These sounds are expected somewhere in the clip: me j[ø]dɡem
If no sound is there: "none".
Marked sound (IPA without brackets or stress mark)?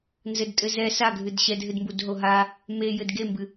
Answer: ɘ